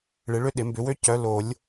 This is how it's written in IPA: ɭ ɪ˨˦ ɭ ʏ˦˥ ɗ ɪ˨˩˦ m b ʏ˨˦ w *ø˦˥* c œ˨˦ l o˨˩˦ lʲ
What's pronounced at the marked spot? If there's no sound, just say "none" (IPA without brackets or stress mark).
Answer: ø˦˥